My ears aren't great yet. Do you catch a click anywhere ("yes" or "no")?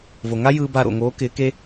no